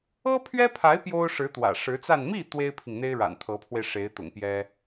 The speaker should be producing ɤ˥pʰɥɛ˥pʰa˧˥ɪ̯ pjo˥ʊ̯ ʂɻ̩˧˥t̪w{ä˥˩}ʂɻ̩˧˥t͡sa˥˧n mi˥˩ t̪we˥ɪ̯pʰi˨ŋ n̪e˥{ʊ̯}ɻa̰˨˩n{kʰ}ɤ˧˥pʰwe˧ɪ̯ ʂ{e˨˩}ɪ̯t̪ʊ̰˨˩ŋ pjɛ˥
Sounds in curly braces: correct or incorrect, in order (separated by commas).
incorrect, incorrect, incorrect, incorrect